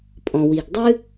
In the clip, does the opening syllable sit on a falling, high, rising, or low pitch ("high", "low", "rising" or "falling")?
low